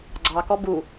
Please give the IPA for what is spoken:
ɡ͡ǀ ɑ k ɔ b u

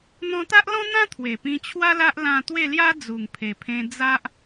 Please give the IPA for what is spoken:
n̪ ɔ̃˧ t̪ a˦ ʔ l ɔ̃˦ n̪ ã˦ t̪ʰ w e˨˩ p ĩ˧ t͡ɕʰ w a˦ l a˦ ʔ l ã˥˧ t̪ w e˥˧ l j a˦ d͡z u˨˩ ŋ pʰ e˨˩ pʰ ẽ˧ d͡z a˦ ʔ

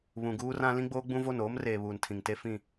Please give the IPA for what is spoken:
β ũ˨ ɡ uː˦ r ã˦ l ĩ˦ ɡ͡b oː˦ ɡ͡b ũ˦ v o˦˨ n oː˦ m r eː˨ β uː˨ n tʰ ĩ˨ ŋ t e˦ f ĩ˦˨

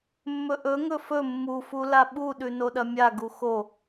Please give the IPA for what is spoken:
mː ɵ ʔ ɵ ŋ ɵ f ɵ mː u f u l a ɓ u ɗ ʉ n o ɗ ɐ mʲ a ɡ u x o

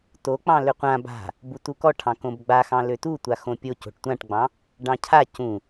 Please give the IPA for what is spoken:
t o k͡p ɑ̃ l ʏ qʷ ã b a̤ | b u t u k ɔ ʈʰ ɑ̃ k õ b ɡ͡b a x ɑ̃ l ø t u tʷ a x õ pʲ o c o̤ ʈ tʷ ã ʈ ɡ͡b ɑ̃ | ɖ ɑ̃ cʰ a c ũ

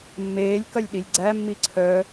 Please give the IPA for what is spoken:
mː eː lʲ k ɐ lʲ ɗ i lʲ ɡ͡ǀ æ mː i ǀʰ œ

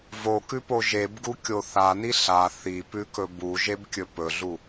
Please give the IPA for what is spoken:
v o k ʉ p o ʒ e b ɡ u kʲ o θ a n i ɬ a θ i p ʉ k ɵ b u ʒ e b kʲ ɵ p ɵ ɮ u

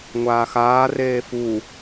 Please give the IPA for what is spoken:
ŋʷ aː x aː r eː f u

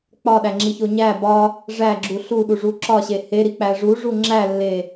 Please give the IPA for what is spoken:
k͡p ɒ ɗ æ ŋ͡ǁ i ç o ɲ æ b ɒ | ʐ æ ɡ͡ǁ u ɬ u ɗ u ʐ u ǁ ɒ ɕ e h e ɾ i k͡p æ ʐ u ʐ u ŋ͡ǁ æ lː e

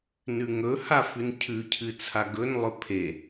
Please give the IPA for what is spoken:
n ʉ ŋ ɵ h a f ʉ n cʰ ʉ cʰ ɨ t͡sʰ a ɡ ɵ n lˠ ɵ pʰ e

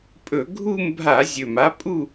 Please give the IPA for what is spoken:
pʼ ɵ˧˩˧ ɡʱ u˥˧ m bʱ a˧˩˧ zʲ ɵ˨˩ m a˨˥ pʼ u˥˧

